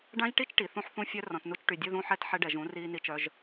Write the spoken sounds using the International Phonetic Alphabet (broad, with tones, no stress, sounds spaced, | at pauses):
ɖ ã˦ ʒ ʈ i˦ t͡ʃ ʈ i˨ θ ũ˦ ħ θ ũ˦ fʲ œ˦ r ɔ̃˨ t n u˧ t͡ʃ ʈ y˨ dʲ ɘ˧ ð ũ˧ ħ ɛ˧ t ħ ɛ˧ ɖ ɛ˨ ʒ ũ˨˦ r iː˧ n i˧ t͡ʃ œ˧ ʒ